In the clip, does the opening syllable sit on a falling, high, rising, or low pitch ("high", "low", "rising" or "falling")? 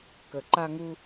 low